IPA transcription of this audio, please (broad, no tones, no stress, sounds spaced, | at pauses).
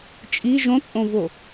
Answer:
t͡ʃʼ i ʒ õ t͡sʼ õ v o